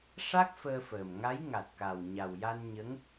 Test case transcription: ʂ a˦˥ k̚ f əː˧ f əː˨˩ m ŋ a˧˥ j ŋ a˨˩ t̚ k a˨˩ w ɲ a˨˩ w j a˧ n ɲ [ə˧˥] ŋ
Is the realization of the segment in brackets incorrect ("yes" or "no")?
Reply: no